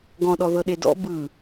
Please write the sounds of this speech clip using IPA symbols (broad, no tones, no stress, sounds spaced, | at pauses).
ɡ ɔ̃ ɗ ɔ ð ɤ ɗ e d ɔ̰ b ɯ